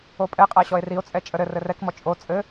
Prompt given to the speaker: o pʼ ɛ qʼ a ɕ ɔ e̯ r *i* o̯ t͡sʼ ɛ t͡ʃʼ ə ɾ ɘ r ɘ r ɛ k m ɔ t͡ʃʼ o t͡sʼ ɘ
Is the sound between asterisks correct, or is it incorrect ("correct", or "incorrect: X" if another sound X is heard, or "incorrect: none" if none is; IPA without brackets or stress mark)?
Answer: correct